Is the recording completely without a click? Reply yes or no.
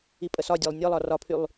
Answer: yes